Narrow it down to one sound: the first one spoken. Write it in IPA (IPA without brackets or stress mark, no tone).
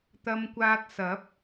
t̪